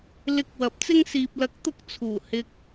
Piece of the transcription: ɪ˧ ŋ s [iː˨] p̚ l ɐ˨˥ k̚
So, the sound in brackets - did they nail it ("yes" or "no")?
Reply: yes